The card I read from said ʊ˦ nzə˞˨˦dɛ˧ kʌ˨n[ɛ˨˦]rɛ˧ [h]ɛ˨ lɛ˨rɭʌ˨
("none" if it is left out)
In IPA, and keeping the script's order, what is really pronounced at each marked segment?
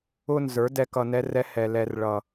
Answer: ɛ˧, h

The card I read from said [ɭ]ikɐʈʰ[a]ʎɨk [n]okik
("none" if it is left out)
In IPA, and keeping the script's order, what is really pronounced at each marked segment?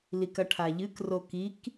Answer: l, a, r

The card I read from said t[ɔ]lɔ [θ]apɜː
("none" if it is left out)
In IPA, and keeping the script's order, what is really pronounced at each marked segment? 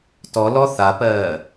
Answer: ɔ, θ

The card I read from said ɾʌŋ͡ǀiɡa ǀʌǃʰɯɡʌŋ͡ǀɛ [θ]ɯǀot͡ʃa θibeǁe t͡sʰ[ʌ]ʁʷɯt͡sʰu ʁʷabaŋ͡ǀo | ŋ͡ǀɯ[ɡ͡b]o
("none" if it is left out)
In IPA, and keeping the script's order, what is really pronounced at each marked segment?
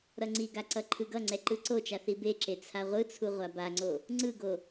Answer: ǃ, a, ɡ

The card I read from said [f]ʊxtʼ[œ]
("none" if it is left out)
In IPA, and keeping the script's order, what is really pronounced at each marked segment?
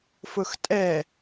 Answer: f, ɛ

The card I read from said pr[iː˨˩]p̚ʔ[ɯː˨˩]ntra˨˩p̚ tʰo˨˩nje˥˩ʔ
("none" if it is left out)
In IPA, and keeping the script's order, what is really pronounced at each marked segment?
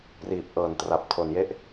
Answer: iː˨˩, ɤː˨˩

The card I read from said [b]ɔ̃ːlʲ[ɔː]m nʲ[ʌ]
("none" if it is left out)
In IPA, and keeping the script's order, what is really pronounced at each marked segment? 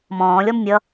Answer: m, ɔ, ʌ

